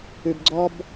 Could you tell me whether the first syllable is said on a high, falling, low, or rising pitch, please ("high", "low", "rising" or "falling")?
low